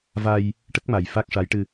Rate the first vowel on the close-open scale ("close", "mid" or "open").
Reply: open